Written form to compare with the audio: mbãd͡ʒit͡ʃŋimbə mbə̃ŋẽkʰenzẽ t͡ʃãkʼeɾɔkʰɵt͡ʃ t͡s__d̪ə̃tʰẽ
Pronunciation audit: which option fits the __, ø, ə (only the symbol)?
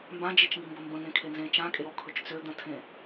ø